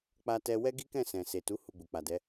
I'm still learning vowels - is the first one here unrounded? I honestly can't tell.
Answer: yes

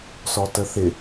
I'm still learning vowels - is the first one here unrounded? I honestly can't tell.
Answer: no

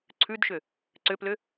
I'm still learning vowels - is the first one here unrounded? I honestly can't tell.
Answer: no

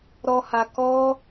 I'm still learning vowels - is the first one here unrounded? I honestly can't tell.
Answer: no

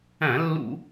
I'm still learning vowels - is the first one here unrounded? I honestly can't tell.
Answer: yes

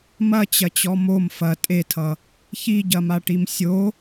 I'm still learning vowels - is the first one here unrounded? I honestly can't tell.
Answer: yes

